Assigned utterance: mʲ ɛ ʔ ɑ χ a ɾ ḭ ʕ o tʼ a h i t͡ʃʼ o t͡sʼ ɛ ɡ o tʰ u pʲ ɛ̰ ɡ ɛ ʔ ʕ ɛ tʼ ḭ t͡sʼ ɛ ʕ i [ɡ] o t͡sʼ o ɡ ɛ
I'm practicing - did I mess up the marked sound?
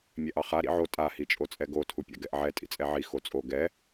yes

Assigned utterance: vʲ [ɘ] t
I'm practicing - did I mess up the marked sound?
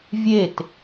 yes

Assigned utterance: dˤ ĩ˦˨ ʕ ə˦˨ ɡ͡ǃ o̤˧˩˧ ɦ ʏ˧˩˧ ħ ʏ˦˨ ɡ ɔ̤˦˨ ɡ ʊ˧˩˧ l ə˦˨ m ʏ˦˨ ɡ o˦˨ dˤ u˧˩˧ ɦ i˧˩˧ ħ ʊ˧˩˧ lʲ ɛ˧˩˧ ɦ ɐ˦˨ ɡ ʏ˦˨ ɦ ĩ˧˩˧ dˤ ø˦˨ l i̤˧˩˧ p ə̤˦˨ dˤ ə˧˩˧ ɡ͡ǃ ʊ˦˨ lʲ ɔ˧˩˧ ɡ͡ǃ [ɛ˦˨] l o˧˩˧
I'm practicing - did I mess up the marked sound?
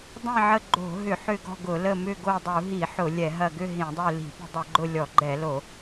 yes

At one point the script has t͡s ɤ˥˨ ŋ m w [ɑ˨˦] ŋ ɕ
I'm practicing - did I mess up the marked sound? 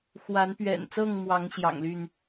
no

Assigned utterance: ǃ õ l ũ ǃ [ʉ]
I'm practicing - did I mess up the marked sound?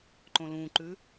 no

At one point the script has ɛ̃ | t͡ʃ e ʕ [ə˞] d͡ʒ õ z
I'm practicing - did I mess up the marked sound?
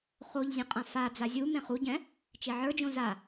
no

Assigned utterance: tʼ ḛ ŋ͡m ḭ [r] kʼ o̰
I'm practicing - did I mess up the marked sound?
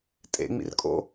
no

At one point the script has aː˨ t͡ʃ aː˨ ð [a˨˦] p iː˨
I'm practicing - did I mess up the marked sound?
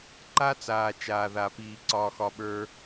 yes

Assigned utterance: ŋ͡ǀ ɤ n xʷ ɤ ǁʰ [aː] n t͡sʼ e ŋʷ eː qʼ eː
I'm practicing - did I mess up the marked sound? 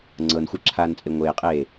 no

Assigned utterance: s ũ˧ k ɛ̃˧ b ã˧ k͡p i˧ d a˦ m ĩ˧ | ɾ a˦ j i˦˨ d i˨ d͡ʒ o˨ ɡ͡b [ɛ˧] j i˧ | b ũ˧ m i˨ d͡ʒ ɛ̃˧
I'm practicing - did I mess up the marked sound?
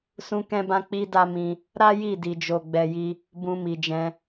yes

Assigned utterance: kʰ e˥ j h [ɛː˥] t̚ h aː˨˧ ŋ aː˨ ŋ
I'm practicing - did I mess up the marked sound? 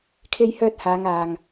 yes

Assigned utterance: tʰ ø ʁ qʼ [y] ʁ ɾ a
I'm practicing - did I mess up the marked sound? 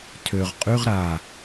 no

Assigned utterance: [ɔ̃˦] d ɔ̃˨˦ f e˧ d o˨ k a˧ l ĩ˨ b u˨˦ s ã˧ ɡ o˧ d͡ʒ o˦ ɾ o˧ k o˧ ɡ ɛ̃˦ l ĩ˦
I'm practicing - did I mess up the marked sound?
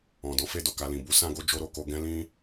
yes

